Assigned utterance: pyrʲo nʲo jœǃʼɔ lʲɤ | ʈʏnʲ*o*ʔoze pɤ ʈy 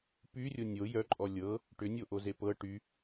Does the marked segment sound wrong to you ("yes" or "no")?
no